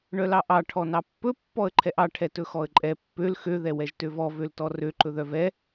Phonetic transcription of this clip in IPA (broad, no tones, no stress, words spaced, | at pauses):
ɳœlɑʔɑ ʈʰɔnɑpːɵ pːɔə̯ǃʰɛʔɑ ʈʰɛtɵxɔə̯ǃʼɛ pːøl xø ðɛwɛʒtøvɔ vøltɔrø ǃɵðœvɛ